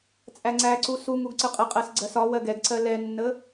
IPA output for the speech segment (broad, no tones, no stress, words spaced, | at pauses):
t͡sʼæŋ͡ǀæǀu suŋuɡ ǀəqʼəqʼɜs ɡ͡ǀɜsɒwɜɡ ɛɡǀɜ lɛnːə